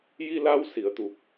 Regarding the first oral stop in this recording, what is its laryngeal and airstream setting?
plain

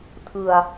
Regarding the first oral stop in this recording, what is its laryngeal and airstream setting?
aspirated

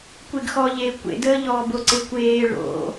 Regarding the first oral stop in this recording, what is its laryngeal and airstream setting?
plain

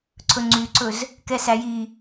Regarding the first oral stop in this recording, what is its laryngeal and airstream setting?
click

